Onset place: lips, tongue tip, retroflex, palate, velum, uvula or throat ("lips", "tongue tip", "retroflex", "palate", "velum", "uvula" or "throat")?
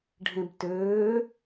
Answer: retroflex